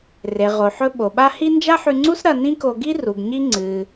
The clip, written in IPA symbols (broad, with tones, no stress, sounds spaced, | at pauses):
r e˩ ʁ o˩ ħ ɵ˧ ɓ o˩ ɓ a˥ h i˥ n d͡ʒ a˥ ħ ʉ˧ ŋ͡ǀ u˥ s ɾ ɐ˧ n ĩ˥ k o˧ ɡ i˥ r u˩ ɡ ɲ i˧ ŋ͡ǀ ɨ˩